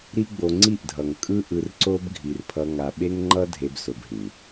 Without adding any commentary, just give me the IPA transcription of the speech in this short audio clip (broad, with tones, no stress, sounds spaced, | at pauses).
ɾ i˦ ɡ͡b o˧ ŋ͡ǀ i˦˨ ʔ dʱ ʌ˨ ŋ kʼ ɯ˦ ʔ ɯ˧ r ǀ o˦ b ɡʱ i˨ r pʰ ʌ˧ ŋ a˨ ɓ e˦ ŋ ŋ͡ǃ ʌ˦ dʱ e˦ b s o˧ b ɦ ĩ˨